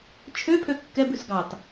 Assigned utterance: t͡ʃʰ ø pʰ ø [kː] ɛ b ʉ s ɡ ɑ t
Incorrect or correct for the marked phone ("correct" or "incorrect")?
correct